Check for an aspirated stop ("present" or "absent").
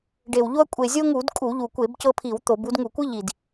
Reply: present